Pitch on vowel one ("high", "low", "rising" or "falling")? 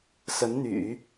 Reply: rising